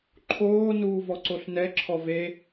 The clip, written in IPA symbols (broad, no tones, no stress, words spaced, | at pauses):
ǃʰoː nuːvɔǀoɬnɛ ǁʰɔve